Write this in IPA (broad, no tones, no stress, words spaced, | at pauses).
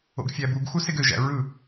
o̰ɡfʲæbuɡxu seɡøʒæ̰ ɹɯ